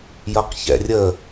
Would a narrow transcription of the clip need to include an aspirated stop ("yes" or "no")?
no